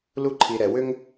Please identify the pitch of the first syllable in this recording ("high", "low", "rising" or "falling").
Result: falling